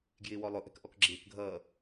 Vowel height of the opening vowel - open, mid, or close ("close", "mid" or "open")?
close